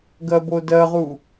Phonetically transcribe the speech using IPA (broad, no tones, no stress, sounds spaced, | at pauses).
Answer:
ɡ ɜ b o d ɜ ʁ u